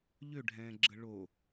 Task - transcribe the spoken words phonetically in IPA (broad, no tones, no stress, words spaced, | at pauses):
ʎøɖʱɛ̃ːɡ͡ǁə ɭo